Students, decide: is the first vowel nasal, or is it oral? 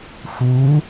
oral